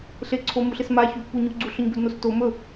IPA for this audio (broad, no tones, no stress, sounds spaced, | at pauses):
ɬ e ǀʰ o m u ɬ ɪ s m a ç u p u ɲ u ɡ͡ǀ u ɬ ɵ ɲ b ɵ d n o s t o m ɵ